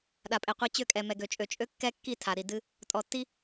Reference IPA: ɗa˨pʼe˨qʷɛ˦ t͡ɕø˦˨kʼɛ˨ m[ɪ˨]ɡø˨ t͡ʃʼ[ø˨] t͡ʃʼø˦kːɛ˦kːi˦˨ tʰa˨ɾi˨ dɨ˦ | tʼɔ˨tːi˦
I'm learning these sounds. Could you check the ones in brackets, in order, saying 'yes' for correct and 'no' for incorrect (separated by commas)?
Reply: no, yes